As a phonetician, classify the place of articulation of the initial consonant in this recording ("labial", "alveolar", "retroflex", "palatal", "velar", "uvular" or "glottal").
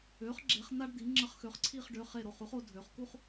uvular